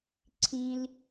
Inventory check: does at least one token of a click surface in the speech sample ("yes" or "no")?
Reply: yes